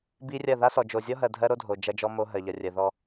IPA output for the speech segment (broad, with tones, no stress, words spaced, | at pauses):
bi˦rʲɐ˦˨ ða˦sɔ˨d͡ʒo˨ zʲɔ˦ɦɜ˨ dʱɜ˦ɾo˦dʱo˨ d͡ʒɐ˦d͡ʒɔ˦mo˦ ɦɜ˨ʎɐ˨rʲɜ˨ ðɔ˦